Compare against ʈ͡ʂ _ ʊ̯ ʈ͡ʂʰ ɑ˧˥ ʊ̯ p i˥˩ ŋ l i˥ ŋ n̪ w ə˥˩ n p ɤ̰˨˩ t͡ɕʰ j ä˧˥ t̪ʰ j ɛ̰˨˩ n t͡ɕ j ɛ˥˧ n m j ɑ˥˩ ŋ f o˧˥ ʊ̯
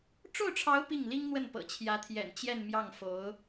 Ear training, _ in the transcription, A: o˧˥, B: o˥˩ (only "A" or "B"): B